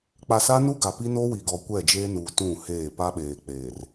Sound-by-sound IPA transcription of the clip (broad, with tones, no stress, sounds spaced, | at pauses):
k͡p a˨ s a˦ n u˦ ɡ a˨ p i˦ n o˦ w i˨ ɡ ɔ˨ kʷ ɛ˦˨ d͡ʒ eː˦ n uː˨ t ũ˦˨ h eː˦˨ p a˦ ɓ eː˨ k͡p eː˨ r